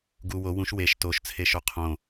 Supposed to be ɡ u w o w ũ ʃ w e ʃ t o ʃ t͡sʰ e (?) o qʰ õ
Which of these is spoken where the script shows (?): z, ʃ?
ʃ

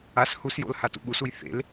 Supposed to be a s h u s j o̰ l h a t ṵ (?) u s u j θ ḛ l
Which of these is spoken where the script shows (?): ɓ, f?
ɓ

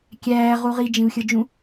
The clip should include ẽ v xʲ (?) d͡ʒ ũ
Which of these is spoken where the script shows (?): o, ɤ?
ɤ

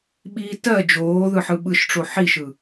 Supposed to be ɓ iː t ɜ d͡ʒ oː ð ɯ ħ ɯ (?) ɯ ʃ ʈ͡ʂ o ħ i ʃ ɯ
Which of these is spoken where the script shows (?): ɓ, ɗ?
ɓ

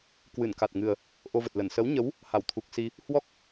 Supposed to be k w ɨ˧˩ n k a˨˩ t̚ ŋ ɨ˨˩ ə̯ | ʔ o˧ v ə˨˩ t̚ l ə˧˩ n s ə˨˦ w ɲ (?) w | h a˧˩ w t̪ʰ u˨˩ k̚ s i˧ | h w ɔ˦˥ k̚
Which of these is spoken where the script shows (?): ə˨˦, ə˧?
ə˨˦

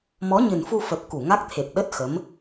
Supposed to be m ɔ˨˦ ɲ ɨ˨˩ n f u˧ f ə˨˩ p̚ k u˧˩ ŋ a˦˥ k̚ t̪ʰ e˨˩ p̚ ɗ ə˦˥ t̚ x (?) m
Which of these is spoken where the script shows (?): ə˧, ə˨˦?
ə˨˦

